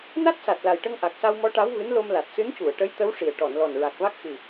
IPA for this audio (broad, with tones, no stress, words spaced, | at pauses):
na˦˥t̚sa˨˩t̚la˨˩jʈə˧ŋ ʔa˨˩k̚sa˧wmɔ˧˥ ʈa˧˥wvɨ˧˥nlo˧mla˨˩t̚ sɨ˧˥ncu˨˩˨ə̯ʈə˧˥j t̪ə˧˥wʂi˨˩ə̯ ʈɔ˨˩˨nlɔ˨˩n ɹa˨˩k̚va˦˥k̚xɨ˨˩